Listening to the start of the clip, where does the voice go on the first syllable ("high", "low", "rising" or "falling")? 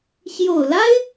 low